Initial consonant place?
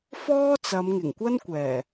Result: labial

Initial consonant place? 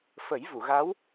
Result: labial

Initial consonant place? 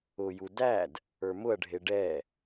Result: palatal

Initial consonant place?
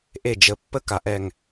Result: glottal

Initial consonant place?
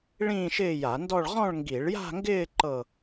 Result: retroflex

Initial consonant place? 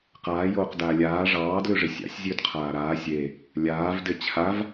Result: uvular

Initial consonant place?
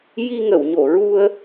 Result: palatal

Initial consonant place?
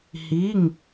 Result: glottal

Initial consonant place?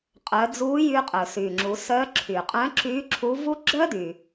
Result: uvular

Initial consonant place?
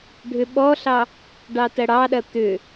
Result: retroflex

